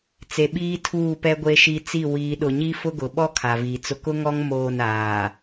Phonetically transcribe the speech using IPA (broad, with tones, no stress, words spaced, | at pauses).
t͡se˨ ɓiː˦tʰuː˦˨pɛ˦ ɡʷe˦ʃi˦ t͡si˦˨ wiː˦ɗʊ˦ ɲi˦fʊ˦ɡʊ˨ɓɔ˦ kʰa˨viː˨t͡sʊ˦ kʊ˦ŋɔ˦ŋ moː˦˨naː˨